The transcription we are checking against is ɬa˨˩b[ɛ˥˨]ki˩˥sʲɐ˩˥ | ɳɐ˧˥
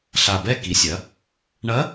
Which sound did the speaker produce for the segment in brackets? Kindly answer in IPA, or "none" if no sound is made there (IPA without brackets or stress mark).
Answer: ɛ˥˨